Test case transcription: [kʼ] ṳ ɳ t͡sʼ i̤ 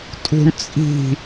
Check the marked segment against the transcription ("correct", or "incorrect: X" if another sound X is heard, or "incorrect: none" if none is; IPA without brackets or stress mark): incorrect: tʼ